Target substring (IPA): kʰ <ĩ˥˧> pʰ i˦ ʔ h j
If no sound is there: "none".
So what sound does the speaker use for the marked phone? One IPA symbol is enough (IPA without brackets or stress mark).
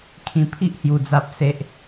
ĩ˨˩